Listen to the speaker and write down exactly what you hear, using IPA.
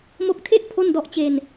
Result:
m o˦˥ k̚ tʰ e˥˩ ʔ pʰ o˥˩ n d ɔ˥˩ ʔ t͡ɕ e˧ n

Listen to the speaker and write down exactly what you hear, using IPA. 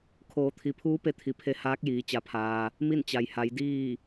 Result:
kʰ oː˩˧ t̪ʰ i˩ pʰ uː˧˥ p e˧˥ t̪ʰ i˩ pʰ e˧˥ h aː˧˥ k̚ j iː˩˧ t͡ɕ a˩˧ pʰ aː˩ | m i˥˨ n t͡ɕ a˩ j h a˩˧ j d iː˥˨

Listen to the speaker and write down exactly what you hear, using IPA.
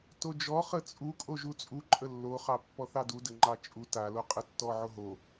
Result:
t o d͡ʒ ɔ χ ə t͡sʼ u kʼ o ʒ u t͡sʼ u ǃʼ ə lː o χ ɑ pː ɔ θ ɑ d u d ə ŋ͡ǃ ɑ t͡ʃʼ u t a l o qʼ ə tː ɔ ʕ o ɦ o

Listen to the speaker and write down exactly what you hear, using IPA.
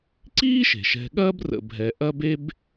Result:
ǀ iː˥ ʃ e̤˩ ʃ ɛ̤˨ ɠ ɐː˥ b r ə̰˨ bʱ ɛ˨ ʔ ɐ˥ b e˥ b

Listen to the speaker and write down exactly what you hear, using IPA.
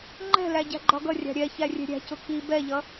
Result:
ŋ͡ǃ ɛ̤ l æ ɟ æ̤ ɡ͡ǃ ɒ ɡ ʌ rʲ ɑ̤ ɾʲ ɛ ç æ rʲ ɛ̤ ɾʲ æ̤ c ʊ k i b ɛ ʎ ʌ

